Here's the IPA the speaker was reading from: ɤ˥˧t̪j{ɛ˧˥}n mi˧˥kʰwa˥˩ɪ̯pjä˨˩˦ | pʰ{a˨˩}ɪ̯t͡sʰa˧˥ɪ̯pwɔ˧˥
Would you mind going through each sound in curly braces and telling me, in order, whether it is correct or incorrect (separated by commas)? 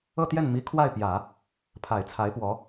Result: incorrect, correct